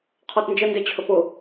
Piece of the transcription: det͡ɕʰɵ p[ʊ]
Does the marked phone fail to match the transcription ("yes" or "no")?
no